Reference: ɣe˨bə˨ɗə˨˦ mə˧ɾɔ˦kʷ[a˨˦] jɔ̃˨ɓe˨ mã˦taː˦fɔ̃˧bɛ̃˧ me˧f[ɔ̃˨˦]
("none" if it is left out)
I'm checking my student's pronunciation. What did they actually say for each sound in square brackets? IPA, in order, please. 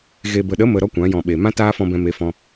ã˨˦, ɔ̃˧

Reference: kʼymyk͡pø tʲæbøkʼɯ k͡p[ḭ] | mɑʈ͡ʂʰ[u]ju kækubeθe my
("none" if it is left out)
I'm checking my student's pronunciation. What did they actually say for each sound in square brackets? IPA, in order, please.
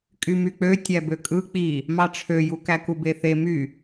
i, ø

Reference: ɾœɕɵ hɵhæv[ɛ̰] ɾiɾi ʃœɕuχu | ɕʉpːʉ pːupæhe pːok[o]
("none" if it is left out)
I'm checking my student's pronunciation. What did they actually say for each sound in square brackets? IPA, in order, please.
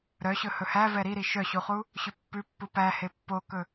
ɛ, ɵ

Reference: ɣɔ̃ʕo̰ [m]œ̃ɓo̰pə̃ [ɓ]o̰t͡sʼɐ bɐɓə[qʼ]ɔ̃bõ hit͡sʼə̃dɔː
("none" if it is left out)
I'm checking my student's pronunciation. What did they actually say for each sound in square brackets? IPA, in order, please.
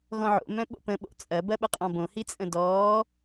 m, ɓ, qʼ

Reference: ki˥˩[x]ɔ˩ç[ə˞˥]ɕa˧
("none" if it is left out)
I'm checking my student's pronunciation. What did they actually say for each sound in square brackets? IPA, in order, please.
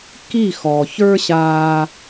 x, ə˞˥

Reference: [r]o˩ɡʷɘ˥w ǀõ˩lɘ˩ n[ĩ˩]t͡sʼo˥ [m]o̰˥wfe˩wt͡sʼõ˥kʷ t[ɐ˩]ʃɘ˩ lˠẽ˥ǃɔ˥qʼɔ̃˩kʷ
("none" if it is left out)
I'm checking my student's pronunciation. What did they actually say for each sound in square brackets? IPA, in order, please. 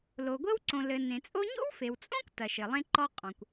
l, ẽ˩, ɲ, ɐ˩

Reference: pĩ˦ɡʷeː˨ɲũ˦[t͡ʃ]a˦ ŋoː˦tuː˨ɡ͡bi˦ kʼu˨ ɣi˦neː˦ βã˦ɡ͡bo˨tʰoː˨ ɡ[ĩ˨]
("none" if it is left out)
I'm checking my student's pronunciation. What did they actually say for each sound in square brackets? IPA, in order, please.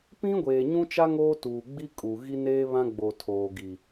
t͡ʃ, i˨

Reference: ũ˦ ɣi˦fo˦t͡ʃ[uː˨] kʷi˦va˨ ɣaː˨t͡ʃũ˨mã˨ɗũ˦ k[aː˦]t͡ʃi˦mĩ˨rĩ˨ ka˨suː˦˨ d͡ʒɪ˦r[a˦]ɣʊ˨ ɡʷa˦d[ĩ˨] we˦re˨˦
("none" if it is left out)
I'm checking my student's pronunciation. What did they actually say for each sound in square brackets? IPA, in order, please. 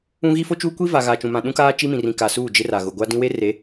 uː˦, aː˦, a˨, ĩ˦

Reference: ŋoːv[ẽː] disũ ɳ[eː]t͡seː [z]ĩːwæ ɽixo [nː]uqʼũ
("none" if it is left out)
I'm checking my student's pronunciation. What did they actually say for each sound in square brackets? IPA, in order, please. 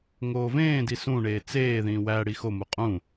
ẽː, eː, ð, m

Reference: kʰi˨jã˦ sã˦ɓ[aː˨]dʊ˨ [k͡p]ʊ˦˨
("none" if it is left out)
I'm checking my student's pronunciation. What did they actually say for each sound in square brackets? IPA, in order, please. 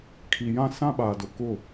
aː˨, k

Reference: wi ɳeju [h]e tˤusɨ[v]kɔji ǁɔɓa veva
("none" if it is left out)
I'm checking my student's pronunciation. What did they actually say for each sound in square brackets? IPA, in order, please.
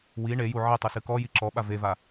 ʕ, none

